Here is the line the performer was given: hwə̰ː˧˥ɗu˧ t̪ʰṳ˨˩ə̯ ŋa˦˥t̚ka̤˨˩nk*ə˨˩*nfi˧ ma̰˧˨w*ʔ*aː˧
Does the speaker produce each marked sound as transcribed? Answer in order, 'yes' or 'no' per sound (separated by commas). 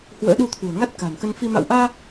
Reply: no, yes